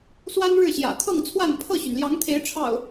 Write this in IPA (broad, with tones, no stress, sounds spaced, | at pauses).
s w a˦ n ɻ ɻ̩˥˨ ɕ j ä̰˨˩ t̪ʰ ɤ˥˨ ŋ t͡sʰ w a˥˨ n pʰ ɤ˥˨ ɕ y˩ n l j ɑ˨˦ ŋ t̪ʰ e˨˦ ɪ̯ ʈ͡ʂʰ ɑ̰˨˩ ʊ̯